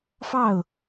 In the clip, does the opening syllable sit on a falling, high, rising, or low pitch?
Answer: falling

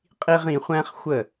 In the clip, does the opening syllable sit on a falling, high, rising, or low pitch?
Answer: high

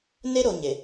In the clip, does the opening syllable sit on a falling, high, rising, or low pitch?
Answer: high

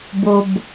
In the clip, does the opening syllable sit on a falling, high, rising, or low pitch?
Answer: low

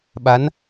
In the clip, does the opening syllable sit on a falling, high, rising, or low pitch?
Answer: rising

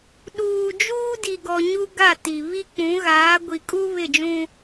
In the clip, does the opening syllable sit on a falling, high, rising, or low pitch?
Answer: low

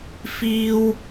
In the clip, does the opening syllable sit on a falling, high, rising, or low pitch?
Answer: high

